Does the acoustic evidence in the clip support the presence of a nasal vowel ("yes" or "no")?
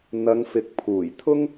no